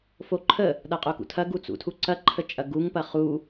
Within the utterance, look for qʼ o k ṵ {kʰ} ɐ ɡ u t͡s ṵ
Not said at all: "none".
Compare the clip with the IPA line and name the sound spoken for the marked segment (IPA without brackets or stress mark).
tʰ